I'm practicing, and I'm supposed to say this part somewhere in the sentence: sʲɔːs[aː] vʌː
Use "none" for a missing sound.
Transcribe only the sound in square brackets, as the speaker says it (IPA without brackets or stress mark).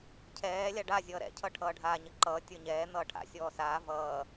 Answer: aː